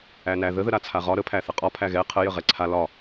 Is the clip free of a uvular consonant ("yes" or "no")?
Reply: no